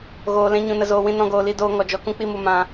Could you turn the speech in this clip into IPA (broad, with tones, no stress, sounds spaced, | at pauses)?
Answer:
ɣ oː˨ l ɛ̃˧ ɲ ũ˨ n ə˨ z oː˨ w ĩ˧ n ɔ̃˧ ɡ oː˨ l i˧ d oː˧ ŋ ɔ˨ d͡ʒ ɔ˧ k ũ˦ k͡p i˧ m u˧ m ã˧